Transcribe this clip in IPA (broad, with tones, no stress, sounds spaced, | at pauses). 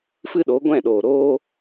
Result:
f ɨ˦ ɗ o˨˦ ɡʷ ɛ̃˦˨ ɗ oː˨ ɾ oː˦